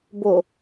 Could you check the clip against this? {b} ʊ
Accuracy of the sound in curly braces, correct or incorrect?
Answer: correct